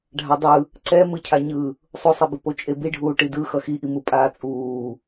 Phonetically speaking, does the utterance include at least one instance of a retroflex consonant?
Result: yes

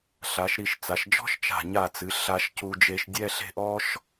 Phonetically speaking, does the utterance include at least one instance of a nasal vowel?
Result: no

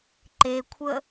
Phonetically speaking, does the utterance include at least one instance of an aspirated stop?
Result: yes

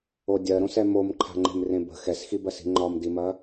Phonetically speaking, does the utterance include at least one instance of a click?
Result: yes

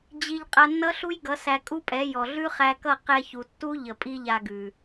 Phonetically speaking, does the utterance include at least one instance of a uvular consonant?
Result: yes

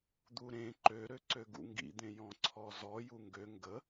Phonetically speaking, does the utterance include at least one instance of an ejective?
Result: no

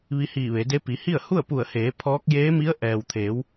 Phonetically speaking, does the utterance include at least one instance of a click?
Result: no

